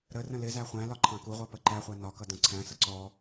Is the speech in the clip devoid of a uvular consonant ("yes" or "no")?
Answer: no